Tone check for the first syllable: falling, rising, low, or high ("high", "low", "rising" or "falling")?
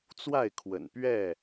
falling